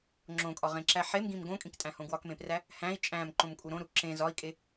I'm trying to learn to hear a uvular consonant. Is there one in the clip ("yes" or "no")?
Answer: yes